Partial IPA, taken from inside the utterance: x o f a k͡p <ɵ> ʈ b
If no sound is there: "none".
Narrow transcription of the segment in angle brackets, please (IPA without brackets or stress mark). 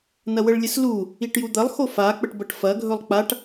ə